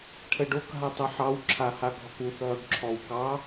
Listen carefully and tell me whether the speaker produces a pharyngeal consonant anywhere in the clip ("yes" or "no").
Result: yes